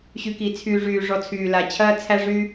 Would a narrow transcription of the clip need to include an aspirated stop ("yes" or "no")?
yes